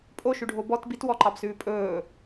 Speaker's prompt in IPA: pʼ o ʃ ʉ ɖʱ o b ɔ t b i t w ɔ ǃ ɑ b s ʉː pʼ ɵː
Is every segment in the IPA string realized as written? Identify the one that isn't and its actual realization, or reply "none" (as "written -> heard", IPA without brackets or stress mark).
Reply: none